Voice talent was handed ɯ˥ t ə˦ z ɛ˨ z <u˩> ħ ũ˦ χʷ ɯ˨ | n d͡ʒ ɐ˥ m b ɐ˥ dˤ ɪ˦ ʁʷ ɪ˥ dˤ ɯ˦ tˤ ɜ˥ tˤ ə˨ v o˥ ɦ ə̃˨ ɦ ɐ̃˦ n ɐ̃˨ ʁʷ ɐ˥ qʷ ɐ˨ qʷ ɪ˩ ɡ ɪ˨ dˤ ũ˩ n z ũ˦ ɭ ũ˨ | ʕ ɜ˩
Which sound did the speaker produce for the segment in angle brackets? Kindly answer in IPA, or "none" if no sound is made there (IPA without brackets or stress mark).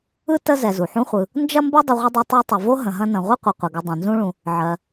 u˩